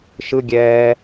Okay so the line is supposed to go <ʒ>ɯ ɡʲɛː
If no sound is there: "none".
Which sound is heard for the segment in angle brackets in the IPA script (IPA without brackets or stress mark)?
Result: ʃ